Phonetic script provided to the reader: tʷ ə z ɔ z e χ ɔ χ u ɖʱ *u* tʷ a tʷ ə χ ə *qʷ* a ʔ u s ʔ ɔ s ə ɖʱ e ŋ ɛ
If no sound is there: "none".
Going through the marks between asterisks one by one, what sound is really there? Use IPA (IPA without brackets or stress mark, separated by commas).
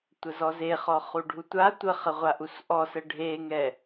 u, ʁʷ